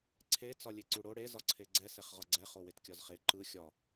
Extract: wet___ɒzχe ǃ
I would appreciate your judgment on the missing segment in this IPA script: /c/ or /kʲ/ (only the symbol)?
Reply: kʲ